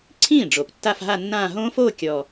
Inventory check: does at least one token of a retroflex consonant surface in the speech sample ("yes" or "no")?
yes